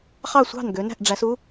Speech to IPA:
χɑ˥˩sʷɑ̤˥˩n ɡø˩˧næ̤˥˩ʔɖ͡ʐæ˩˧s u˥

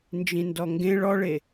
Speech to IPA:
nd͡ʒĩndɔŋɡẽ ɭɔɭe

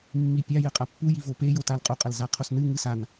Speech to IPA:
mːipʲa jɘqʼapːu jivope jotalqʼo qʼɐlzaqʰosnɨ ŋɨsan

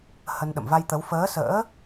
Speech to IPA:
hə˧n ɗə̰˧˨mva˧jt̪ə˨˦w fəː˨˦sə̰ː˧˥

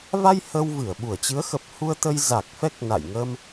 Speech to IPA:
va˧j hə˧w vɨ˧˩ə̯ɓu˧˩ə̯ t͡ɕɨ˨˦ə̯xə˨˩p̚ hu˧ə̯t̪ə˧j za˨˩k̚ fɛ˦˥k̚na̰˧˨j ŋə˧m

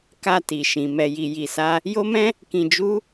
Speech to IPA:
ka˧ ti˨ʃĩ˨ mɛ˧ji˧ ji˧sa˦ | jo˦mɛ̃˦ | kĩ˧d͡ʒu˦

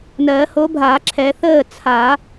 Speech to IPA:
nɜː˨˩˦ho˨˥bʱa˨˩˦ǁʰɛ˨˩˦ θəː˥˨ t͡sʰa˨˩˦

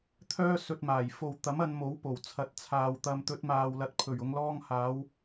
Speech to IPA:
t̪ʰœː˥ sɵ˧t̚maː˨˩j fo˨w t̪ɐ˨˥mɐ˧nmo˨˥w po˨˩wt͡sʰɐ˨˥t̚t͡sʰaː˨wt̪ɐ˧m t̪ɵ˨˥t̚maː˨wlɐ˨˥t̚ pʰɵ˨˩ɥ ʊ˨˧ŋlɔː˧ŋhaː˨˧w

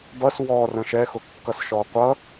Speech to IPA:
bʌs wɔ rə̃ʃɛ xʊkːʌsʃɔ qʷʌ

